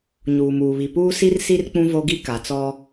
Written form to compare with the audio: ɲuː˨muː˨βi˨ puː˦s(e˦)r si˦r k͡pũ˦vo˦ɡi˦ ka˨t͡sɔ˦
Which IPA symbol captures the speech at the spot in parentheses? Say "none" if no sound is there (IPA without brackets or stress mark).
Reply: i˦